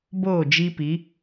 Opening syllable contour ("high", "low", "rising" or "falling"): falling